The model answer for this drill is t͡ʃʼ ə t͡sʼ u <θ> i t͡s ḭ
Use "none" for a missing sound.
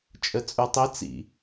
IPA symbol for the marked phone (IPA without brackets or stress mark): tˤ